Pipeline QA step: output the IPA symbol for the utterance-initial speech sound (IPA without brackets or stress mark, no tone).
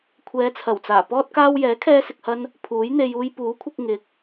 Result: kʷʰ